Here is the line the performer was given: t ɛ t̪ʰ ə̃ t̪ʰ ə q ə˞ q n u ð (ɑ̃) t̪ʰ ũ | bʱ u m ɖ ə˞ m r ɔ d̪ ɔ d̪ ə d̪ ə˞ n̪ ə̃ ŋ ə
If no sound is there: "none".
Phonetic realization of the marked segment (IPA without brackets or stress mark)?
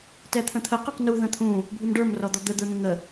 ə̃